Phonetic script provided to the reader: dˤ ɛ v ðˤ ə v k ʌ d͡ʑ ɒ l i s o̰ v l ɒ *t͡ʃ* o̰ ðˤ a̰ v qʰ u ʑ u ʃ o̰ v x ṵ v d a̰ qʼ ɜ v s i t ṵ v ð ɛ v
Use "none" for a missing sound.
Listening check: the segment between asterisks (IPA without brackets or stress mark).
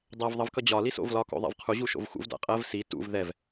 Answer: k